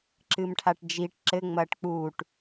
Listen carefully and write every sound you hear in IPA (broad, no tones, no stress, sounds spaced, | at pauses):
ǁ ɨ m ʈʰ a ʈ d͡ʒ i ʈ ǁ ɘ ŋ͡m ɐː ʈ k͡p uː ʈ